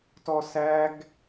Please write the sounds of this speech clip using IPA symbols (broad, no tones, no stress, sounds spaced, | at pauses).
t ɔ s æ ɡ